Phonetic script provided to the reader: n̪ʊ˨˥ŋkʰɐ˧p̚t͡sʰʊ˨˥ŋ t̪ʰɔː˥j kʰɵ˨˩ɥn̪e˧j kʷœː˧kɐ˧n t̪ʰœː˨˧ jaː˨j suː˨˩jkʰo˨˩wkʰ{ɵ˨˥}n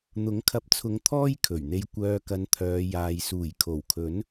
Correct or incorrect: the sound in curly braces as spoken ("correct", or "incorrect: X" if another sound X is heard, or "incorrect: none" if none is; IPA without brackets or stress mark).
correct